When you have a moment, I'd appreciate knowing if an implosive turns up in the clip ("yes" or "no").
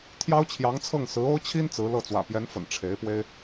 no